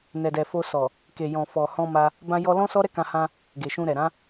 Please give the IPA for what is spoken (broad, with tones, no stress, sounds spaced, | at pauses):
n ɛ˨ d ɛ˨ f o˧ s ɔ˨ | k e˨ j ɔ̃˨ f ɔ˨ h ɔ̃˧ m a˧ | b ã˧ j ɔ˧ l ɔ̃˦ s ɔ˦ ɾ ɛ˦ k ã˧ h ã˧ | ɡ e˨ ʃ ũ˧ ɾ ɛ˨ ɾ ã˨˦